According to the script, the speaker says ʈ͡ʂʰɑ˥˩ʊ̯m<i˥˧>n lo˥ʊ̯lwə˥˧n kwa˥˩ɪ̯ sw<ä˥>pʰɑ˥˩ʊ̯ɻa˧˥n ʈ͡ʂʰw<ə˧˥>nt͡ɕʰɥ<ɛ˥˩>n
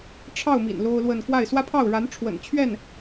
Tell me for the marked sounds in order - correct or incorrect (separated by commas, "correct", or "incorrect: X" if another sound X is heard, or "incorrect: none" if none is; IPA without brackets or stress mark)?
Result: incorrect: ḭ˨˩, correct, incorrect: ə̰˨˩, correct